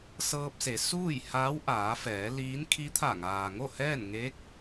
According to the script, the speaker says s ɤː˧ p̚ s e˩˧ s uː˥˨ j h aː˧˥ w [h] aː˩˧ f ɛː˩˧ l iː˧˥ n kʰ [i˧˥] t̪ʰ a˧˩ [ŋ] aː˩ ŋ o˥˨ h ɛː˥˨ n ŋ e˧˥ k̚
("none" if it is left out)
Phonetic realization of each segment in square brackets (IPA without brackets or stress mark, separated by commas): ʔ, i˧˥, ŋ